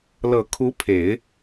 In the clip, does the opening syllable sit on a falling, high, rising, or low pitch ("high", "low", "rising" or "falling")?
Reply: low